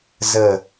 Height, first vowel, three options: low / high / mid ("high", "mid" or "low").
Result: mid